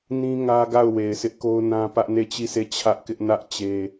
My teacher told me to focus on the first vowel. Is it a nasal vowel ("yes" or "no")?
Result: yes